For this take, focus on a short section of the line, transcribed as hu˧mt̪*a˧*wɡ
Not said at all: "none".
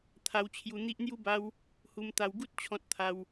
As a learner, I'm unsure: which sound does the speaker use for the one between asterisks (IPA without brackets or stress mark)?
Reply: a˧